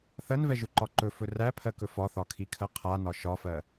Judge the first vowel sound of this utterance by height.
mid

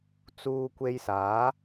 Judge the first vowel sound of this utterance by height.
high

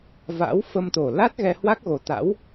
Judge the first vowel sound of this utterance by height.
low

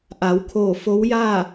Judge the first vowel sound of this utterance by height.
low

